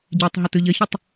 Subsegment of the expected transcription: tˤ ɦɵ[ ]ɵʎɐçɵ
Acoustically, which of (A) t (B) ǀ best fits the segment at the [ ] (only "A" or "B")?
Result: A